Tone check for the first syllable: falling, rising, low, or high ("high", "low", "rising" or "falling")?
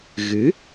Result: rising